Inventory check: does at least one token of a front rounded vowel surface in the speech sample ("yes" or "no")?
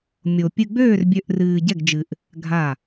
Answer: yes